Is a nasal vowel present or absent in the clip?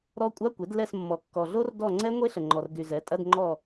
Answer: absent